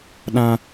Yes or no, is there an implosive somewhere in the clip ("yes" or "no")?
yes